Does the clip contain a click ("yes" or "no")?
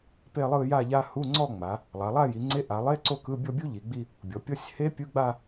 yes